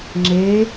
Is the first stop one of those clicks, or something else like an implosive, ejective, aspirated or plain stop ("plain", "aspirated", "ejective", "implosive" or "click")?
click